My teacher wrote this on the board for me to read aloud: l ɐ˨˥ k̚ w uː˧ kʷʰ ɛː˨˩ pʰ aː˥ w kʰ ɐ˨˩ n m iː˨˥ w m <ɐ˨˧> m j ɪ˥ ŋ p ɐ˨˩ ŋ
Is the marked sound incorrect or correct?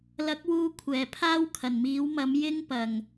incorrect